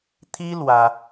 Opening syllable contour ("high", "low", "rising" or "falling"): high